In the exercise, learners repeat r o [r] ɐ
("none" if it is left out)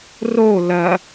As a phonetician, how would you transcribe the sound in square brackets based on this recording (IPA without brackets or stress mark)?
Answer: l